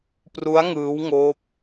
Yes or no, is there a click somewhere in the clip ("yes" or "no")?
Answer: no